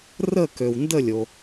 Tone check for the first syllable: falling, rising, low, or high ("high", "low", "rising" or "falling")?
falling